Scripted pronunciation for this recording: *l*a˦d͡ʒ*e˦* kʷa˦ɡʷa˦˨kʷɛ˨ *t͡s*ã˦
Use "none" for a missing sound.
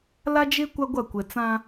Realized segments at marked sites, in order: l, e˦, t͡s

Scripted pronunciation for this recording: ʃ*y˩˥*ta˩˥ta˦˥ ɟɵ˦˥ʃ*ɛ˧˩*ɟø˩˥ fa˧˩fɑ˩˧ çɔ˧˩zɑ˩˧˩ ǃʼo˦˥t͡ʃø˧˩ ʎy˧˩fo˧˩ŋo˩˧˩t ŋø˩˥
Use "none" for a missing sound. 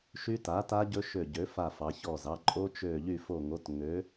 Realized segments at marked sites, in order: y˦˥, ø˧˩

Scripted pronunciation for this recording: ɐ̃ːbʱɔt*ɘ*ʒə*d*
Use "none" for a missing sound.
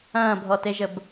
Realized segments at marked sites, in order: e, b

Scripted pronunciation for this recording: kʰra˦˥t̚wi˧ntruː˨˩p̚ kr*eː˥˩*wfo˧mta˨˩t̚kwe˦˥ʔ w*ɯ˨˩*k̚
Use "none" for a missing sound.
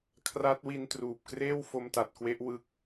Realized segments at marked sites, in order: eː˥˩, ɯ˦˥

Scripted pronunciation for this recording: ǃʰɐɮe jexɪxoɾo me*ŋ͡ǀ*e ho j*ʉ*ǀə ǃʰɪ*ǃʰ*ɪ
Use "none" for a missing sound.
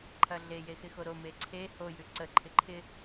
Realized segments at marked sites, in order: ǀʰ, ʉ, ǃʰ

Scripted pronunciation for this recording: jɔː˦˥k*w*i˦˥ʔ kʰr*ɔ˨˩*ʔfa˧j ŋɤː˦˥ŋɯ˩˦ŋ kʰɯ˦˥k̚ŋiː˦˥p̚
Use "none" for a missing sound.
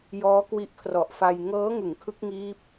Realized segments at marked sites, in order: w, ɔ˨˩

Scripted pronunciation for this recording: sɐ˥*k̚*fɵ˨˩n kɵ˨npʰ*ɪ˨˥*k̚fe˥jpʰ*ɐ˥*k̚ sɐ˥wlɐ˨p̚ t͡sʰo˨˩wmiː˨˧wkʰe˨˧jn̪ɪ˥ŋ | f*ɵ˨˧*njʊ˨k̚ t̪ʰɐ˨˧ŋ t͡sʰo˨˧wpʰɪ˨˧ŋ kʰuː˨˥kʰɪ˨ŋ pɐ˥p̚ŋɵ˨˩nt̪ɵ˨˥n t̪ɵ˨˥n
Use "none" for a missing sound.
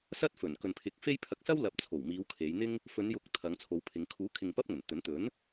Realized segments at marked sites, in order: t̚, ɪ˨˥, ɐ˧, ɵ˨˧

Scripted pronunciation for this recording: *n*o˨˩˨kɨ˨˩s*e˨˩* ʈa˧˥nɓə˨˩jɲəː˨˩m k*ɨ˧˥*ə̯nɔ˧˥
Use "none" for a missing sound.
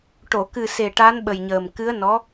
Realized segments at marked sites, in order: ʈ, e˨˩, ɨ˧˥

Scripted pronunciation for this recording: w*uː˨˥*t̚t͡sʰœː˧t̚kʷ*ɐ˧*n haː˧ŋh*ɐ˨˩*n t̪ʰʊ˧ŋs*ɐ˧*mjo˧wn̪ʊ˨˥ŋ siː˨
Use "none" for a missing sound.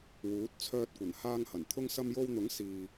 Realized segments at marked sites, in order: uː˨˥, ɐ˨˩, ɐ˨˩, ɐ˧

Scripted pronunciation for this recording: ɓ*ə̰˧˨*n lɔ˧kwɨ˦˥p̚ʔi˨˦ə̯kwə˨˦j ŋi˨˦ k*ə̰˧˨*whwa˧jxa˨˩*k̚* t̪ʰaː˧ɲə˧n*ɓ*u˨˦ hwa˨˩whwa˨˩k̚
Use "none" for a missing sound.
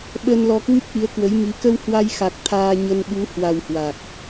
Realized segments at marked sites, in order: ə˧, ə˧, k̚, ɓ

